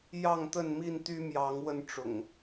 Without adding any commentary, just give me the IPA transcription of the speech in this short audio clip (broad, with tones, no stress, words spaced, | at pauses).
jɑ˥˨ŋt̪ə˥˨n mi˥˨nt̪y˦ mjɑ˨˦ŋ wə˥˨nʈ͡ʂʊ̰˨˩ŋ